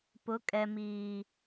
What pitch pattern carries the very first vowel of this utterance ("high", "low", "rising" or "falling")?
rising